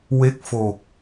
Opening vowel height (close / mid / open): mid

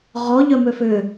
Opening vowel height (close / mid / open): mid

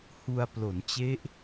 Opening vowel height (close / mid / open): close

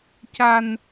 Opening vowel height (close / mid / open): open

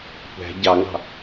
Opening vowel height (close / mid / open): open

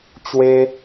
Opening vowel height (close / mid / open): mid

